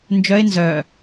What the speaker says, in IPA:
nd͡ʒœɪ̯ nzœ

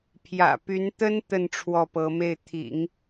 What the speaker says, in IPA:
pʰjä̰˨˩py˧˥nt̪ə˥n t̪ə˥˧n ʈ͡ʂʰwɔ˥˩pɤ˧˥me˥˩ɪ̯ t̪ʰḭ˨˩˦ŋ

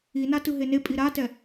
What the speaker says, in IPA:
ina tɯɦenepʼi ɾatɛ

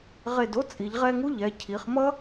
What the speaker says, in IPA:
ʁe˧˩do˥t͡sʼi˩˧ʎ ʁɛ˥˧ŋu˥ʎɛ˩˧ cʰi˩˧χmʌ˥

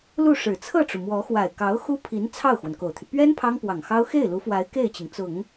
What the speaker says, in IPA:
lu˥˩ʂɻ̩˨˩ t͡sʰɤ˥˩ʈ͡ʂu˩mwɔ˧˥xwa˨˩ɪ̯ kɑ˧˥ʊ̯xu˥pʰi˧˥n t͡sʰɑ˥˩ʊ̯xwə˩n ko˨˩ʊ̯t̪ʰy˦ pɥɛ˥n pʰɑ˥ŋpwɑ˨˩ŋxɑ˥ʊ̯ xe˥˩ɪ̯lu˧˥fwa˧˥ɪ̯ ke˥˩ɪ̯t͡ɕi˩ŋt͡sʊ˨˩˦ŋ

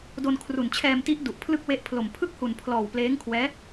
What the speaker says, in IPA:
do˧nkʰru˨˩nt͡ɕʰɛː˧mti˦˥ʔ du˨˩ʔpʰlɯ˥˩k̚we˦˥ʔpʰlo˨˩m pʰɯ˥˩k̚hu˨˩npʰlɔː˨˩w pleː˦˥ŋkʰwɛː˦˥

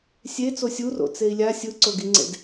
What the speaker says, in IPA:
sʲe t͡sosʲuro̰ t͡sei̯lʲa sʲɯǀoɡiŋ͡ǀḛd

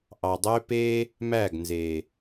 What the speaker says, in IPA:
ʔɑ˨dˤø˦peː˦ | mæ˦˨ɡnzeː˨

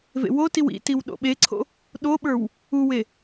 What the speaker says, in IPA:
vḛwotiw ḭtiw ɗo̰ɓeǀʰo̰ | ɗoɓə˞w | uwe

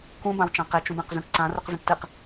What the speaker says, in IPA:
kũ bãwt͡ʃãqe t͡ʃũbẽqzũʈǀã ruqzãʈtɨq

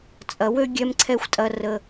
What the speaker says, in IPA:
t͡sʼɐ˨wø˦ ɡʲɛ˦mǀʰɛ˦xʷtʼɐ˦rə˦

